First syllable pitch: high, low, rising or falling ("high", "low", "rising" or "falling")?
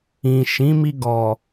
low